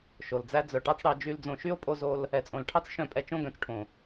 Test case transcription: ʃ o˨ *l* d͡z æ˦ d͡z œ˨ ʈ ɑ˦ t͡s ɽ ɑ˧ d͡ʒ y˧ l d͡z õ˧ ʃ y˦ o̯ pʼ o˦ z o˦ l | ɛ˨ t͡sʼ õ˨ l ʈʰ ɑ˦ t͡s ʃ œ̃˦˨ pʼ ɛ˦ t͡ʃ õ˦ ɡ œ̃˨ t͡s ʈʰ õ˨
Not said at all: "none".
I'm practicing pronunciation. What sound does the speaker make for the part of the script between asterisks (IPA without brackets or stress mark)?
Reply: l